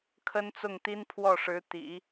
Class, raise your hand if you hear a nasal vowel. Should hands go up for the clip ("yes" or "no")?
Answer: no